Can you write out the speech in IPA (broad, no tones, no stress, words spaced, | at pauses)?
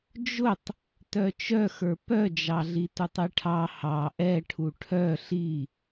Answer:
d͡ʒʊtˤ | tœt͡ʃœxə˞ pœd͡ʒɑɮi tutˤiʈʰɑ hɑ ʔɛʈʰu ʈʰœ ɬi